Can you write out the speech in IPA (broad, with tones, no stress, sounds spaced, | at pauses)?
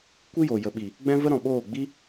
kʷ i˦ j o˨ j ə˨ ɓ i˨ | ɡ͡b ɛ̃˦ v ə˦ ɾ ɔ̃˨ ɓ oː˦˨ ɡ͡b i˦